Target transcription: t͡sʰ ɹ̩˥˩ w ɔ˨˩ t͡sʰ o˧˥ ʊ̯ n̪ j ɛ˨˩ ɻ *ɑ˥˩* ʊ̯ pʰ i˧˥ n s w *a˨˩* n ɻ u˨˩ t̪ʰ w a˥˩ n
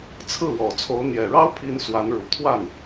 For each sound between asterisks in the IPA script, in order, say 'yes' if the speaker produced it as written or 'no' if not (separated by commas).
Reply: no, no